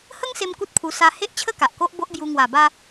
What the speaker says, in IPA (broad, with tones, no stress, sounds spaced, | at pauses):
h ə˦ ŋ s e˧ m k u˦ t̚ pʰ u˧ s a˧ h e˦ ʔ t͡ɕʰ ə˦ k a˨ ʔ k o˦ ʔ b o˦ ʔ b j u˧ ŋ w a˨˩ b a˧